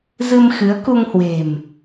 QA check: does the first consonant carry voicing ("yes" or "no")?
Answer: yes